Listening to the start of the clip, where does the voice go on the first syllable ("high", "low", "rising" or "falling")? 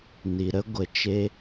low